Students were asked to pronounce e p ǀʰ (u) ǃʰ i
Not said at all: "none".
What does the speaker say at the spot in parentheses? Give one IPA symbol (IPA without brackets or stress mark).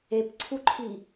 u